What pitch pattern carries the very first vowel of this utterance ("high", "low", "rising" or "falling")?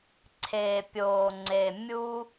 low